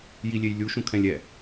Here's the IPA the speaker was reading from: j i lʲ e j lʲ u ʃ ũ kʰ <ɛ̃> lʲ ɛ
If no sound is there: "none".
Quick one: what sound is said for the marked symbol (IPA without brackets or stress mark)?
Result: ɛ̃